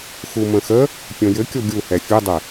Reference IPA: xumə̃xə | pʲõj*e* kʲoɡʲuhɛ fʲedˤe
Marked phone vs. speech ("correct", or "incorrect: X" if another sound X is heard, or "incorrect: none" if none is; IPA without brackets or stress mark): incorrect: ɘ